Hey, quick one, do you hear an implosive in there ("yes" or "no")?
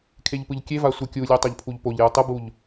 no